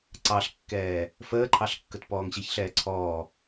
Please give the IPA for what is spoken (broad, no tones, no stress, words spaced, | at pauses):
ǀɑɬkːɛː | fəːǃʰɑɬkːət pɔːŋɕiçɬɛː ǀʰɔː